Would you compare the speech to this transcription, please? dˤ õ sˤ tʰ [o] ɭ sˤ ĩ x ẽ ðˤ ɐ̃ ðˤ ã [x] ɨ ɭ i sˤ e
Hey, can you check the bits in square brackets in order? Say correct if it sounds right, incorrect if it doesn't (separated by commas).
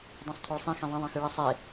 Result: correct, correct